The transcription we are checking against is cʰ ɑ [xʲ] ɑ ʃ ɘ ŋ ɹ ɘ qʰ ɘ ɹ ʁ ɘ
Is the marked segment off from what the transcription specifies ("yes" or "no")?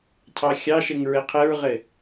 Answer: no